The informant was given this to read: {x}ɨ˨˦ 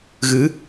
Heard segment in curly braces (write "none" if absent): ɣ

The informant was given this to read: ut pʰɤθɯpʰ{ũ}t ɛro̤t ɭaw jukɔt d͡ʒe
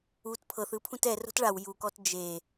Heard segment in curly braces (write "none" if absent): ũ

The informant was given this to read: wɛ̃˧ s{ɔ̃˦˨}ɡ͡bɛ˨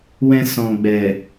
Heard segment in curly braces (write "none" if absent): ɔ̃˨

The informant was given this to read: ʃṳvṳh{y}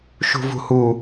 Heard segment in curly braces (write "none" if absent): u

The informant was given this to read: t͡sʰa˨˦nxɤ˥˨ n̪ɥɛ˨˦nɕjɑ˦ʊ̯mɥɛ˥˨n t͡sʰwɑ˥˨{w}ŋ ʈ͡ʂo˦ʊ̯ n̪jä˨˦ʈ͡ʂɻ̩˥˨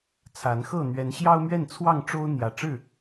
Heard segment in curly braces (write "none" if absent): none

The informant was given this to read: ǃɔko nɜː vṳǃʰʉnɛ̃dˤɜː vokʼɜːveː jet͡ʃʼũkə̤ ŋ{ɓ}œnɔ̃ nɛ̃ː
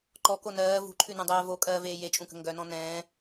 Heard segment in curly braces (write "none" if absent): ɡ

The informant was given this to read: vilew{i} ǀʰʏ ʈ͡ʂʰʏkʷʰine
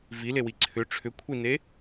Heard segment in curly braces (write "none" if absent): i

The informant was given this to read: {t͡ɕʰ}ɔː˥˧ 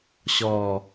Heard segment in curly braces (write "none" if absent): ɕ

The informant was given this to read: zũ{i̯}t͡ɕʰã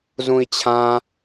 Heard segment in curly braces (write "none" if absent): i̯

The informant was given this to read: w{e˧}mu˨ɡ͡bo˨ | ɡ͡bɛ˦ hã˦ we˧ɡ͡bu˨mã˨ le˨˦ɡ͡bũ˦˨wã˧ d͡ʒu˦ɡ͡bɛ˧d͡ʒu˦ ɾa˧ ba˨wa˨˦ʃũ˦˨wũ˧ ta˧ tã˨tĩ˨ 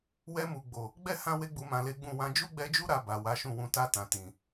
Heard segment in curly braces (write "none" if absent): ɛ˧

